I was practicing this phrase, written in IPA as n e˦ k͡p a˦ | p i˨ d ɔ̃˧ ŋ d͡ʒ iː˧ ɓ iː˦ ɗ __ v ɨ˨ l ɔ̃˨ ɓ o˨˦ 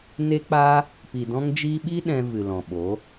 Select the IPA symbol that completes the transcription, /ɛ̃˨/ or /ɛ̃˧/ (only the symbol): ɛ̃˧